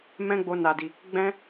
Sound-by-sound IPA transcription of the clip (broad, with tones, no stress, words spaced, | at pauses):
mɛ̃˦ɡ͡bo˧ na˨di˨ | ɡ͡bɛ̃˦